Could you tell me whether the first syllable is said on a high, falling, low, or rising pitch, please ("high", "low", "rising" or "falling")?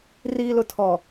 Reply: low